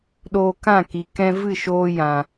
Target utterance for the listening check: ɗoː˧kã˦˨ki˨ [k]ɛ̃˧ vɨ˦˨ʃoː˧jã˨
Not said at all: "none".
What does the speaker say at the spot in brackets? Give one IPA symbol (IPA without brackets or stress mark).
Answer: k